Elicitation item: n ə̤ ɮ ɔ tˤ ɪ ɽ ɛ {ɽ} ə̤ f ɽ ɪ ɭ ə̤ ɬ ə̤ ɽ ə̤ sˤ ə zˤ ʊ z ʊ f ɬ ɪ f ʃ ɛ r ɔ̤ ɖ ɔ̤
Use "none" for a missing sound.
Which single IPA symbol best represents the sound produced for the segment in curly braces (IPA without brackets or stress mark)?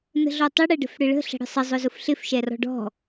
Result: ɖ